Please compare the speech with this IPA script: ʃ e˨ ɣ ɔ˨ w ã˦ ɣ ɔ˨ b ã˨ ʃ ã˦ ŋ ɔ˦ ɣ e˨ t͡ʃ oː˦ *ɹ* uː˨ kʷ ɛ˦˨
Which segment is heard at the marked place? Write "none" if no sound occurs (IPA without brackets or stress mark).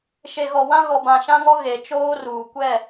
r